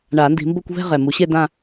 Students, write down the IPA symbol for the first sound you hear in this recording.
ɳ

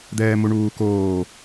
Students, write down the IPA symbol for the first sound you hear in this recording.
d̪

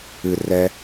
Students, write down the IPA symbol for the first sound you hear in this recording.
ɨ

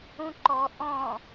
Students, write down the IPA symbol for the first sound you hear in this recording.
ũ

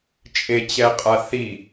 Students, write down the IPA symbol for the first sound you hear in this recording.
t͡ʃʼ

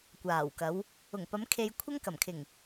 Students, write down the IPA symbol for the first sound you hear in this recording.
kʷ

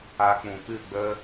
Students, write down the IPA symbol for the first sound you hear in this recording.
a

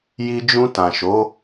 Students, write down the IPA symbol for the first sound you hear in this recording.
j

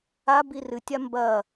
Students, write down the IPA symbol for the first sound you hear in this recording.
a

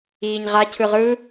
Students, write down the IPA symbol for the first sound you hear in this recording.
iː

